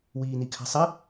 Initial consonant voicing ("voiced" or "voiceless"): voiced